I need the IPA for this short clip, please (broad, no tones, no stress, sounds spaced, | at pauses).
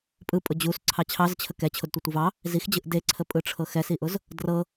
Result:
pʼ ɯ pʼ ʊ d͡ʑ u s ǀʰ ɑ t͡ɕʰ ɑ z t͡ɕʰ ə k ɛ t͡ɕʰ ʊ d tʷ ɯ tʷ ɯ v ɑ | z i x d͡ʑ ɯ ʔ d e ǀʰ ə pʼ ɯ ʈ͡ʂʰ ɤ x ɛ s i ʔ ʊ z | d r ɤ